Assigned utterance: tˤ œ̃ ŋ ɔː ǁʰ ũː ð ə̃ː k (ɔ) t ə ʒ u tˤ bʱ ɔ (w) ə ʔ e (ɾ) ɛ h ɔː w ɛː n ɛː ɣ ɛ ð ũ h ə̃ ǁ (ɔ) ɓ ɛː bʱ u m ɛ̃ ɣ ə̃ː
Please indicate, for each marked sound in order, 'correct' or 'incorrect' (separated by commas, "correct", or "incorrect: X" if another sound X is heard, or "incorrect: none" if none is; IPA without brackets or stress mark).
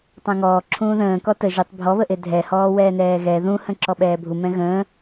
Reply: correct, incorrect: β, incorrect: dʱ, correct